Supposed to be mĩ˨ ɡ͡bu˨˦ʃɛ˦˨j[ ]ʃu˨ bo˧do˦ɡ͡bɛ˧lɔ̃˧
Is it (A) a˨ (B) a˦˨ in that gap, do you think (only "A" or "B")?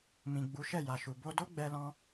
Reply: A